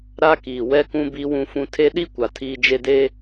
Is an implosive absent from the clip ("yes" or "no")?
no